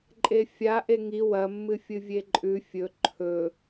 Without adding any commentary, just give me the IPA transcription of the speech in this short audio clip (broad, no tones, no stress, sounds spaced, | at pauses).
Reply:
ǃʼ e fʲ a ʔ e ŋ i w ɐ mː ɨ fʲ ɨ vʲ e ǃʼ ʉ fʲ ɵ ǃʰ ɵ